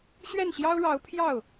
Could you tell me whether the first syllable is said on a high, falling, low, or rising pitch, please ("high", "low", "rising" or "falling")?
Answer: falling